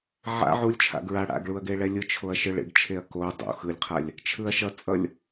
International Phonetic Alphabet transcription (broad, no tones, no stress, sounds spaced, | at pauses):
ʕ a̰ ʕ u lʲ t͡ʃʰ a̰ ɡ ɹ a ɽ a̰ ɡ ɭ u ɐ̯ ɡ e ɭ ɛ lʲ ɯ t͡ʃʰ o ɐ̯ ʃ ɯ ɭ ḛ ɡ t͡ʃʰ e ɐ̯ k o dˤ o̰ x ɯ lʲ qʰ a lʲ | t͡ʃʰ ɯ ɐ̯ ʃ ʌ t͡sʼ ʌ lʲ